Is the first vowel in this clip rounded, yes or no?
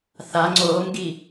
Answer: no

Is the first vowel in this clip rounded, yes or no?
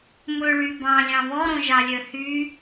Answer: yes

